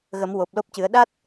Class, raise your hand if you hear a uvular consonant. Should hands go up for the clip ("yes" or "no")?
no